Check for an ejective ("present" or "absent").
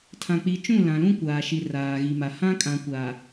present